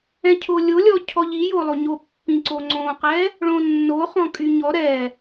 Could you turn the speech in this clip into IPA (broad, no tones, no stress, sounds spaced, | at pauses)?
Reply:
ɛ̃ cʰ o lʲ o lʲ ɔ cʰ ɔ ʎ i j o lˠ o ɲ o pː ĩ ǀ o ŋ͡ǀ õ q ɛ | ɭ õ nː o χ ɔ̃ kʼ y ɲ ɔ ɾ ɛ